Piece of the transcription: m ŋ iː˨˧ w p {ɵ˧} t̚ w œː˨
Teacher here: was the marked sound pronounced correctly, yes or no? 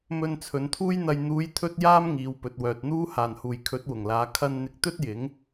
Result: no